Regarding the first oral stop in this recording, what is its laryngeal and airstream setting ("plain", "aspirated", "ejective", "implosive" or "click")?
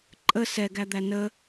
click